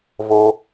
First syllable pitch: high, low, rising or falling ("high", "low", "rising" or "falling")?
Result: low